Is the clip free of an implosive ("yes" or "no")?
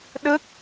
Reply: no